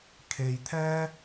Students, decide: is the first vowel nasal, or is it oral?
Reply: oral